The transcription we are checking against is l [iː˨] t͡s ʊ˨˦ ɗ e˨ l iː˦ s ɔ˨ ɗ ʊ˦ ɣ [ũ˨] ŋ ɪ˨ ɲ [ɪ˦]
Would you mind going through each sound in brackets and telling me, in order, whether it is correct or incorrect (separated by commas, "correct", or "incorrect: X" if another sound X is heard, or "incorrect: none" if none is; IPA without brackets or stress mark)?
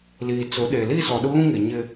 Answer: correct, incorrect: ũ˦, correct